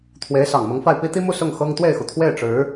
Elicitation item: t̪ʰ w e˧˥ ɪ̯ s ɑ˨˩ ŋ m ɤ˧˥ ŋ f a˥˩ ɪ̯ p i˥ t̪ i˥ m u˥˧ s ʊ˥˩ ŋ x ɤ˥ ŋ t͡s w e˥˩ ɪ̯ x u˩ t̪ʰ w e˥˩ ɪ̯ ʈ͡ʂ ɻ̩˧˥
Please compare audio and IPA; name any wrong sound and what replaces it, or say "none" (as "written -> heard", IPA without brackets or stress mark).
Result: t͡s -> t̪